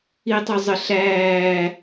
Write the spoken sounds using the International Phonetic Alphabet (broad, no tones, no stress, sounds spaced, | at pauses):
i tˤ o zˤ ə ɬ æː